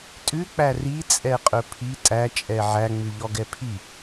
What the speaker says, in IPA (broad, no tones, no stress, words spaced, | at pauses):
tʼʉk͡pæ rit͡sʼɛqʼɵ pʰi tʼæt͡ʃʼɛ ʕæŋ͡mʉʎɔɡɛ pʰi